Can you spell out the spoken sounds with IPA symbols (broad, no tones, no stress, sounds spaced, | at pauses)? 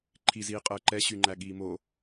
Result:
ǃʰ i z iː qʼ əː ǃ ɛ ɕ y ŋ͡ǃ æ ɠ iː m o